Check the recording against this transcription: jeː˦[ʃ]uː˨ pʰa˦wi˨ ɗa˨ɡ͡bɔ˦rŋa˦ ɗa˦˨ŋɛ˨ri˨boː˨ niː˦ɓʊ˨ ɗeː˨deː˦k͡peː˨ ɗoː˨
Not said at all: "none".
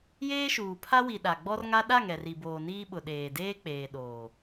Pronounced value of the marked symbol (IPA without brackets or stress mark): ʃ